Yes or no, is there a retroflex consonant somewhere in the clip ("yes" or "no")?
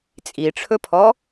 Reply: yes